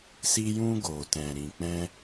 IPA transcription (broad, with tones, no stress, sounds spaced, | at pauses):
s i˧ j ũ˧ ɡ o˨ t ɛ̃˨ ɾ ĩ˨ k͡p ɛ̃˧